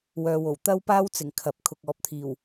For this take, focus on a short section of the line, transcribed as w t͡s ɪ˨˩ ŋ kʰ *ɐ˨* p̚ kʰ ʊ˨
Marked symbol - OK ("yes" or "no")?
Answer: yes